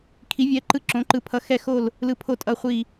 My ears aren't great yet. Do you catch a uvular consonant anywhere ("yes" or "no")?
yes